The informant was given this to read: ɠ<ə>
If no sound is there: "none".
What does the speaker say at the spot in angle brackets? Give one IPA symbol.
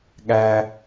æ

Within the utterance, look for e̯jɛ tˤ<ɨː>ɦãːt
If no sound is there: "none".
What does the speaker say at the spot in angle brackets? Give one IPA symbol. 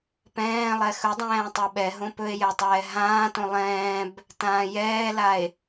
ɛː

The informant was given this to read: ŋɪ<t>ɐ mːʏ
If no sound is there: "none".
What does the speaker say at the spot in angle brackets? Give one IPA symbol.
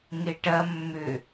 ʈ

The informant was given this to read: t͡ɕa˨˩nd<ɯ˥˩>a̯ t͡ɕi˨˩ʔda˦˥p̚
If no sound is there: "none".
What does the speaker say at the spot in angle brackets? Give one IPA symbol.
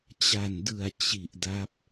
ɯ˨˩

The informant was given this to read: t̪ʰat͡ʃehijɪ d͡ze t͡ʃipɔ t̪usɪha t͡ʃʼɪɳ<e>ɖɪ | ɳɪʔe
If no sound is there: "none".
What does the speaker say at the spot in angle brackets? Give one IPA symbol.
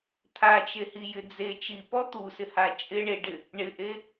e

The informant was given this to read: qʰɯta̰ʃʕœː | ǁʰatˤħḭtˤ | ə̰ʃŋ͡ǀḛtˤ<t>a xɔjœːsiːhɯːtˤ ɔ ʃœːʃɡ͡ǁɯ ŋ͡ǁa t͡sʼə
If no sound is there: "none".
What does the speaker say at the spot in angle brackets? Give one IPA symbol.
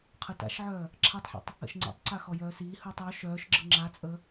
ǀ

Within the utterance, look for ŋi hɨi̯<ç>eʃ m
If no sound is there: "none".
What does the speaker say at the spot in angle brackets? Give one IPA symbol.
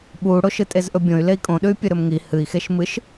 x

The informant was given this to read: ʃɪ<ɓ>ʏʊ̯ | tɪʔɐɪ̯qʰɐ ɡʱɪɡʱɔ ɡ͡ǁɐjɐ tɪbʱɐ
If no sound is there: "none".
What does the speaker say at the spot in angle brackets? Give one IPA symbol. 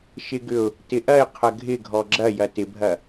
ɡ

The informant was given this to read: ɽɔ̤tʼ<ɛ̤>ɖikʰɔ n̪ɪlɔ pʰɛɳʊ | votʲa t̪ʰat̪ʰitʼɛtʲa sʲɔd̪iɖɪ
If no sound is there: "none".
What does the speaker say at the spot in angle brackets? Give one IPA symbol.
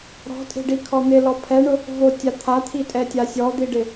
e̤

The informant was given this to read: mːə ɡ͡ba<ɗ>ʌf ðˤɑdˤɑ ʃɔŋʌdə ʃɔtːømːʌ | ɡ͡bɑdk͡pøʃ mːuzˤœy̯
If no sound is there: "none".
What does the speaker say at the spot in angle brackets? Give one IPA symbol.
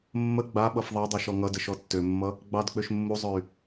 ɓ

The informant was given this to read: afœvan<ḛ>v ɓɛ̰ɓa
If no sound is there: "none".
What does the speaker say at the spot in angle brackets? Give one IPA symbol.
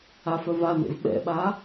ḛ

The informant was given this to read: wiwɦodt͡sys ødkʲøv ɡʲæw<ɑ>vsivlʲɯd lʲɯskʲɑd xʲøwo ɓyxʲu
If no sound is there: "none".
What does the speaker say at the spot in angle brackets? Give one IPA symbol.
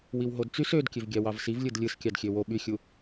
ɑ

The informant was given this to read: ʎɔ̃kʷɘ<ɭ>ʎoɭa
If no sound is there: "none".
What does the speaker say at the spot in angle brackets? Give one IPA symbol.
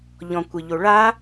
none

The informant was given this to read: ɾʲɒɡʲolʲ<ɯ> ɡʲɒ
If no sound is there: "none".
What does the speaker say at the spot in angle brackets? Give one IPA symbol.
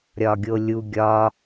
u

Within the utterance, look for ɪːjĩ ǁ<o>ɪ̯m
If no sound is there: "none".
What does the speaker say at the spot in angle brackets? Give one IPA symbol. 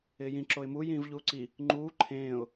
o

